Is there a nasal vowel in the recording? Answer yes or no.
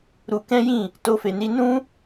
yes